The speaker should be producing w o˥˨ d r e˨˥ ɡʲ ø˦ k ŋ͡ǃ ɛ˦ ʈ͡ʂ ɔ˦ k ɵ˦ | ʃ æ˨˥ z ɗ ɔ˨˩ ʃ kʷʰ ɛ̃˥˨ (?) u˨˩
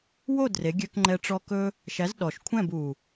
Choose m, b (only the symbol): b